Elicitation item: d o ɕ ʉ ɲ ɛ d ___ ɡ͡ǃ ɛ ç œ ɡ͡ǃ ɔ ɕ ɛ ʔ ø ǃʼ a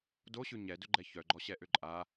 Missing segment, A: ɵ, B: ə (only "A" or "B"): A